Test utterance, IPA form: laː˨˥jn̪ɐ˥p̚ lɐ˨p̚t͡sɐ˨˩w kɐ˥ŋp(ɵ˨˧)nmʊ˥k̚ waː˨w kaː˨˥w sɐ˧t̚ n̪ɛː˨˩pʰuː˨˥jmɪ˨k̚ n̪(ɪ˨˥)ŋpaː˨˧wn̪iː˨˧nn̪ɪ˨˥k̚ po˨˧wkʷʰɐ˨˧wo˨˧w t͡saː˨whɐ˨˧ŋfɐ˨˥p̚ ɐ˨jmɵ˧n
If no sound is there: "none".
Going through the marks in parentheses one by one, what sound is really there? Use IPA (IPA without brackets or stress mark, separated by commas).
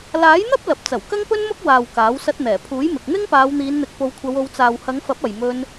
ɵ˥, ɪ˥